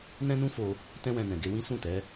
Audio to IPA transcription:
n ɛ̃˦ n ũ˦ f o˧ | t ɛ̃˦ w ɛ̃˧ n ɛ̃˨ ɡ e˧ w ĩ˦ s ũ˦˨ t ɛ˨˦

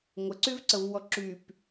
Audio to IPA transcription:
ŋʷ ə ǀ y v ǀ ə v w ɔ ǁ y p

